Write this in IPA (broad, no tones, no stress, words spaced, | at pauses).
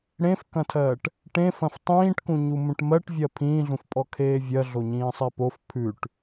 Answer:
ɽẽfkɐ̃tʰɜːʈ | ʈẽfɐ̃f tˤĩːʈkũɲu mũʈmɜʈvʲɜ pʰĩːɮũfpʼɔ kʰeːvʲɜɮoɲĩː sˤepof pʰʉʈ